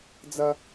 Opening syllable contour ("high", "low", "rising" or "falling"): high